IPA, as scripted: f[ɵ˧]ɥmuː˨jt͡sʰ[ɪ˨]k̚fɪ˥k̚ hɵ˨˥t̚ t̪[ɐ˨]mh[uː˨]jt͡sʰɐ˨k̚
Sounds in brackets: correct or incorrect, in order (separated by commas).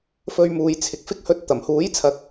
correct, correct, incorrect, incorrect